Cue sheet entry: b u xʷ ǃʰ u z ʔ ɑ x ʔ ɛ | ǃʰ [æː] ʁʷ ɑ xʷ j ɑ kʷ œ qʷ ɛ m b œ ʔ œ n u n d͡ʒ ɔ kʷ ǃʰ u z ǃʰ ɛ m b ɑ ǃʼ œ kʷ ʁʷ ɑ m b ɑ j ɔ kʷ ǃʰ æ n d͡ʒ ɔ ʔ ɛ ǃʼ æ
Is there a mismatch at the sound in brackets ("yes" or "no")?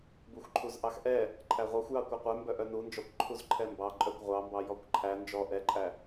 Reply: yes